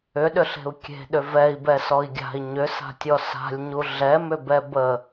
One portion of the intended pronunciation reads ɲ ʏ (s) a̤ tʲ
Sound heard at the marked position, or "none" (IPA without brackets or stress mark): s